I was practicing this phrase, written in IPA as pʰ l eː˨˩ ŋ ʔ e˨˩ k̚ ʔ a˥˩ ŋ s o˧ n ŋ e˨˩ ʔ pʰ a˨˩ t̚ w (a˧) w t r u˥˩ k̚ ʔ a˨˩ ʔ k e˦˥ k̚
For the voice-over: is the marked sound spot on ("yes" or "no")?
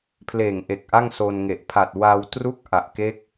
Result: yes